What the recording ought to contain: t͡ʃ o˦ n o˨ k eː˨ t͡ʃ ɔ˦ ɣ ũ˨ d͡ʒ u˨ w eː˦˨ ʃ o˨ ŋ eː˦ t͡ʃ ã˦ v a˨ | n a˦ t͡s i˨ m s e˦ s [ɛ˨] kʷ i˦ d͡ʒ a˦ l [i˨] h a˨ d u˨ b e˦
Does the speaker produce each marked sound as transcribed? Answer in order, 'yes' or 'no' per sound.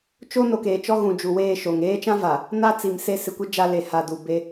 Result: no, no

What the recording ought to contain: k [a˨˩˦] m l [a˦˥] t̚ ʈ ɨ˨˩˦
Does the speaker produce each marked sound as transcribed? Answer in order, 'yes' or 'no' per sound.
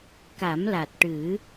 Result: yes, no

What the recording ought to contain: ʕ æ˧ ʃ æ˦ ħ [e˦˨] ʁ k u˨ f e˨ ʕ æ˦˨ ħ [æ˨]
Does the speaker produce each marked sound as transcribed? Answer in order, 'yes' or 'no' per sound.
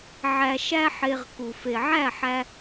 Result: no, no

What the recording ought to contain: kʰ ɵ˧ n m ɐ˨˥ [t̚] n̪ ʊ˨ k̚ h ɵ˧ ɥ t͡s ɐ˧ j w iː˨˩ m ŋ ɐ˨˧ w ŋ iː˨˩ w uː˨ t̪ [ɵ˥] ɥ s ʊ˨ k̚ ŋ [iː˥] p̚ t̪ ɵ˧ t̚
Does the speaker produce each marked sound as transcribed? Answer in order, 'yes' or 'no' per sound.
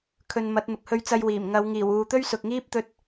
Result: yes, yes, yes

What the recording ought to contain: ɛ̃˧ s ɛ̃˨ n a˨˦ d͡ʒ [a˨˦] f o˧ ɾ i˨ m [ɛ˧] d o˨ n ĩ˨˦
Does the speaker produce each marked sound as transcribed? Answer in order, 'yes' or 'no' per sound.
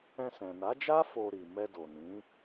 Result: no, yes

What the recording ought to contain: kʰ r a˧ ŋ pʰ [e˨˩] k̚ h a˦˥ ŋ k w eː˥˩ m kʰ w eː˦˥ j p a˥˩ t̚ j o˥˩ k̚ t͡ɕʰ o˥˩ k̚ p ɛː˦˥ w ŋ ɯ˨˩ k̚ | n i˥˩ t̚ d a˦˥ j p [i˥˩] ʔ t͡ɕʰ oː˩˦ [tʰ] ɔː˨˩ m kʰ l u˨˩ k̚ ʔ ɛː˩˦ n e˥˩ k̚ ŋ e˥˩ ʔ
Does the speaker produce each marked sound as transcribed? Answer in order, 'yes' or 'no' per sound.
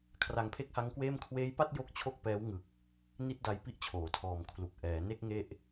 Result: no, yes, yes

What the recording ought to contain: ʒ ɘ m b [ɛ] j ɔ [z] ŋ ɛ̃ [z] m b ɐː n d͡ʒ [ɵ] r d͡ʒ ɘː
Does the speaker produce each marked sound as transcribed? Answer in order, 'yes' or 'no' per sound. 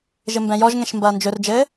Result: no, no, no, yes

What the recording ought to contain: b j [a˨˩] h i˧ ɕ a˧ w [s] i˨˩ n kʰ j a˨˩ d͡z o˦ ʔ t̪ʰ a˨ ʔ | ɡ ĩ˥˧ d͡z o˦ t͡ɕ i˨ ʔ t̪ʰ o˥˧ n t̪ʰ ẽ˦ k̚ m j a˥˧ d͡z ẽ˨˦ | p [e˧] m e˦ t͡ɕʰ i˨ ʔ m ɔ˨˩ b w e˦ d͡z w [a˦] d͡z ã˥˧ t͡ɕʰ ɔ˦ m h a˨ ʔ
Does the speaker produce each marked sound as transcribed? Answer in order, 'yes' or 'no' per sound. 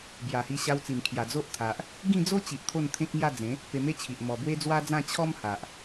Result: yes, no, yes, yes

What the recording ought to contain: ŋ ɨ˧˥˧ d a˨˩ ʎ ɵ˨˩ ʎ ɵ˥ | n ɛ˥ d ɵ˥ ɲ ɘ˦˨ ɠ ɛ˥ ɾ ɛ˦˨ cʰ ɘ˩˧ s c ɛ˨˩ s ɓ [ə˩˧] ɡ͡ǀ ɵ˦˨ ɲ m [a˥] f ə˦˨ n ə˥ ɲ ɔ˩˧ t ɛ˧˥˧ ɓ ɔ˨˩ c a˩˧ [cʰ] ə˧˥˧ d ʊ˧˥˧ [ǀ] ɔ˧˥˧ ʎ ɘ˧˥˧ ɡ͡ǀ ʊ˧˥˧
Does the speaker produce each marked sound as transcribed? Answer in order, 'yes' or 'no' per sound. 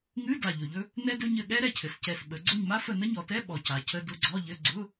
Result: yes, yes, yes, no

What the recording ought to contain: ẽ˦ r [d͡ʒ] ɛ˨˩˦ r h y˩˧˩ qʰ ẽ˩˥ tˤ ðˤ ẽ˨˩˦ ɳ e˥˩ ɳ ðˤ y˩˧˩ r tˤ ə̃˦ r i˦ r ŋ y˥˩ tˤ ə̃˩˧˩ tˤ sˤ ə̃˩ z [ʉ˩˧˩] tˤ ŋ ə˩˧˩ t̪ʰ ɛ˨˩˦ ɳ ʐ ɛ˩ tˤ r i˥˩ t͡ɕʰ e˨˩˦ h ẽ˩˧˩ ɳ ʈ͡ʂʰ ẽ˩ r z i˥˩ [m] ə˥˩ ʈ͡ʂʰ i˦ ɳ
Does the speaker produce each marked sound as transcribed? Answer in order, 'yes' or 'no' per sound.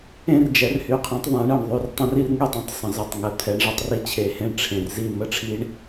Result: yes, no, yes

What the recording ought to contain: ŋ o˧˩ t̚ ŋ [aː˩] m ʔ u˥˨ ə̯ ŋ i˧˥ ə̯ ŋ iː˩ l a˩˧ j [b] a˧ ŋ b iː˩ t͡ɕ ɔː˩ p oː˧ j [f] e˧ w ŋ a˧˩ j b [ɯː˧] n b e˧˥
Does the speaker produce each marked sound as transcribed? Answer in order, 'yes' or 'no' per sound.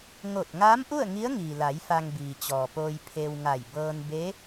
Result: no, no, no, no

